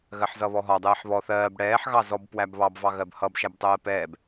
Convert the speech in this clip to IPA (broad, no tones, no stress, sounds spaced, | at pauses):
ɣ ɜ ħ z ʌ β ɔ ɦ ɒ dˤ ɛː ħ β ɔ θ ɜː b ɽ ɛː ħ ɣ ɑ z ɔ b p w æ b β ɑ b v ɑ ɣ ɜ b h ʌ b ʃ æ b tˤ ɜː p ɛː b